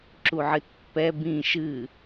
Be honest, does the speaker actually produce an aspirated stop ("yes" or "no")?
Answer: no